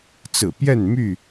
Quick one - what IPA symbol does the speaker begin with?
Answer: t͡s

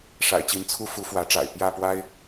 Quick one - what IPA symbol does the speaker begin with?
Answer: ʂ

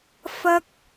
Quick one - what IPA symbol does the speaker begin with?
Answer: f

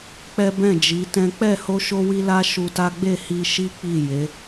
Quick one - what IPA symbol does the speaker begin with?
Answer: k͡p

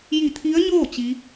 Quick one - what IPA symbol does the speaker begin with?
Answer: j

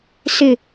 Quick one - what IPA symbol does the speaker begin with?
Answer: s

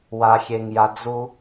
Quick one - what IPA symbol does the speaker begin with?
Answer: w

